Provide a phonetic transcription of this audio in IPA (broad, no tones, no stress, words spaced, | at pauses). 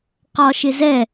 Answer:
qɒʃɪzɛ